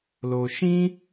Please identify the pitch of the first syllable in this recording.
low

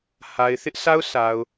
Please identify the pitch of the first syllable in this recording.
low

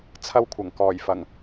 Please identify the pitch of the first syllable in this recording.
high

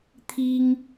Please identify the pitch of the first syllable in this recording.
high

